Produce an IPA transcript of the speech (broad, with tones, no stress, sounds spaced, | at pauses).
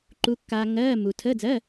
ǃ u˧ kː aː˧ ŋ ɜː˧˥˧ m u˧ tʰ əː˧˥˧ d͡z ɜː˧˥˧